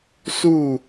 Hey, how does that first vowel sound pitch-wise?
falling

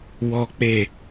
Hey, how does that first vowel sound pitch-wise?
high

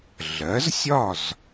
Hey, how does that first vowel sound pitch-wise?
rising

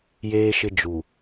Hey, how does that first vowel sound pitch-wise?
high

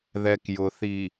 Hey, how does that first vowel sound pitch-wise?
low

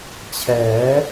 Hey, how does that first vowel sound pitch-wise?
rising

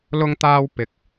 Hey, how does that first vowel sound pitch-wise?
high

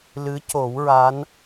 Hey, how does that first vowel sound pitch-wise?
rising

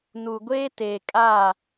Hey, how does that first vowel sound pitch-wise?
low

